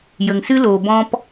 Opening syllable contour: low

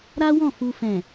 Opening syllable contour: high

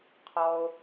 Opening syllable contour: low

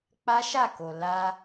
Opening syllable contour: high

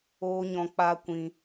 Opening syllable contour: high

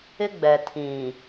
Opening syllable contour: high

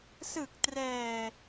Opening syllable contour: low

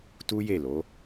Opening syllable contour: high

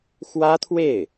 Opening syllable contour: high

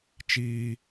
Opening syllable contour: high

